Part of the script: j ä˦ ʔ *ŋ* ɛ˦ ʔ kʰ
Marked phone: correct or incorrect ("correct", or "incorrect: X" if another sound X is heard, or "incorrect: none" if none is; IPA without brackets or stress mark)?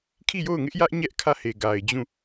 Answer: incorrect: ɲ